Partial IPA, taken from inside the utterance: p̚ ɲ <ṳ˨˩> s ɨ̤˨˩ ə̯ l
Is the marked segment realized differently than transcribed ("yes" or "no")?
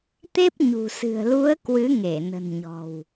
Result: no